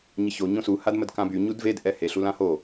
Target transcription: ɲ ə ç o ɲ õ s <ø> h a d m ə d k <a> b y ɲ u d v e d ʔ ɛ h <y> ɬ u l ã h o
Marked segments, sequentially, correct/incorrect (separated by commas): incorrect, incorrect, incorrect